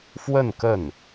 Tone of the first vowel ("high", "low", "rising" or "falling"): falling